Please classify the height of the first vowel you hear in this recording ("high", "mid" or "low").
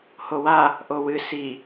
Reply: mid